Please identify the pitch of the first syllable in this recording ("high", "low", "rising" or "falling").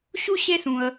high